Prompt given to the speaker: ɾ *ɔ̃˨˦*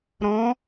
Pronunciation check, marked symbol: correct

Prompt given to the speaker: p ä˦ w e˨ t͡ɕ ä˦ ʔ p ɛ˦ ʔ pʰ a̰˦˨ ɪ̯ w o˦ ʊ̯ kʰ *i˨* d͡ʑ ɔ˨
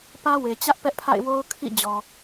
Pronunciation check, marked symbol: incorrect: ḭ˦˨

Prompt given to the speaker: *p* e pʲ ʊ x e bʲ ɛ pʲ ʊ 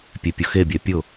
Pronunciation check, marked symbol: incorrect: pʲ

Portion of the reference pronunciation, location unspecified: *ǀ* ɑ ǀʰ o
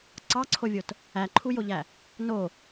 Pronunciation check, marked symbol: correct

